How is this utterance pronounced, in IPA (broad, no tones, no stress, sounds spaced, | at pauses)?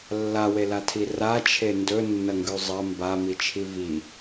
lː a w e l a tʰ i r a t͡ʃʰ e n d ɵ nː ɐ ŋ ɡ ʉ zˤ ɐ m b a m i t͡ʃʰ i v i